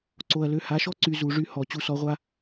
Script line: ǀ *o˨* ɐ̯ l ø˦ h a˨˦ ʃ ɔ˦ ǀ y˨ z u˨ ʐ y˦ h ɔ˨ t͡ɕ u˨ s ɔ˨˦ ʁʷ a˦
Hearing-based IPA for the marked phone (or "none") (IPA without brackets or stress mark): o˨